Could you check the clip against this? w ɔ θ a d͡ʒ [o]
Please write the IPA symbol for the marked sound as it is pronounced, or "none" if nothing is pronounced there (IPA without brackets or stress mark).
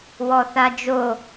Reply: o